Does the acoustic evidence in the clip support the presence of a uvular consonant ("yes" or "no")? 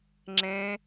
no